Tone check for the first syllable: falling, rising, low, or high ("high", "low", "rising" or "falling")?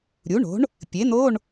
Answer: rising